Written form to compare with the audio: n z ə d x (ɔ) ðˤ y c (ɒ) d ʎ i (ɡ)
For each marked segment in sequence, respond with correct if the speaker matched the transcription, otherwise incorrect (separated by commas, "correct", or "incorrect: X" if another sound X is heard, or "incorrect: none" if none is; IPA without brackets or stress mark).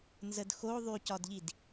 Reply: incorrect: o, correct, incorrect: d